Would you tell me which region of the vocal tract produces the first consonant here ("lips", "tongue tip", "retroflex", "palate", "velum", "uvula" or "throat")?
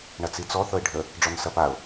retroflex